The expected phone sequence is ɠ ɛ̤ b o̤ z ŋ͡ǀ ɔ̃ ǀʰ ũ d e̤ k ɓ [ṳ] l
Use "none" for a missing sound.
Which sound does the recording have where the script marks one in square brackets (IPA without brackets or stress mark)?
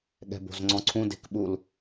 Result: u